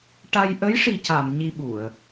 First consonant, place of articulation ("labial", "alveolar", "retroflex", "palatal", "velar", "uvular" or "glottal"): retroflex